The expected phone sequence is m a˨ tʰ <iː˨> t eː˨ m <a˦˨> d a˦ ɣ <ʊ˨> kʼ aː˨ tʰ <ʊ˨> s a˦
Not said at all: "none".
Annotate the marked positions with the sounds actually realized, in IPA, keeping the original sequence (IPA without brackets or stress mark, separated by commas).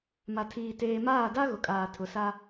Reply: iː˨, aː˦˨, ʊ˨, ʊ˨